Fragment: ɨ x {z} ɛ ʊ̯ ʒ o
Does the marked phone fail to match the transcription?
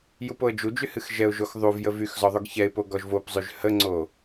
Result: yes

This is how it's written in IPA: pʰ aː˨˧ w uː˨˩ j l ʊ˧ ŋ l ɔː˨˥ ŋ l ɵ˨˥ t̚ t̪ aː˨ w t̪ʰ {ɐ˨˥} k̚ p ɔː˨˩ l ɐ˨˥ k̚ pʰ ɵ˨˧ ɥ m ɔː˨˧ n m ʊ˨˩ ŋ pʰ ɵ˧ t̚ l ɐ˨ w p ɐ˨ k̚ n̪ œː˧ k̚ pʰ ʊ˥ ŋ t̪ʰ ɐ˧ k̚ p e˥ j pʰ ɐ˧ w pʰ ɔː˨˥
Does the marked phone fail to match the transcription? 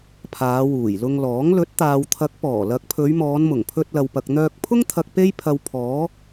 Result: no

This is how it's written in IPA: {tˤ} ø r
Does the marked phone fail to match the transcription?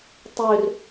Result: no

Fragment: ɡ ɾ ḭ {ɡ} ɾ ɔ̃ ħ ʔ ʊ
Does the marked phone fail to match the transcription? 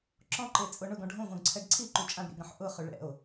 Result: no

